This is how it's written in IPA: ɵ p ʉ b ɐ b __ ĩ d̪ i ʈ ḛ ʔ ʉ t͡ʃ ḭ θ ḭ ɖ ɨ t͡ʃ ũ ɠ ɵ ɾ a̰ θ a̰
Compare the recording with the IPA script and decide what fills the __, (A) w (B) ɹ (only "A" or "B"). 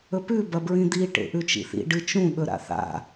B